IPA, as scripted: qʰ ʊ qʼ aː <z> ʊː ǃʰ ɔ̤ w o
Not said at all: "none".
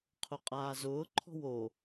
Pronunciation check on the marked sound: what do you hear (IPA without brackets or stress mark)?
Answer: z